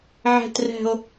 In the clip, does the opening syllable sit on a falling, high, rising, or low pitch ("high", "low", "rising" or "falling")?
low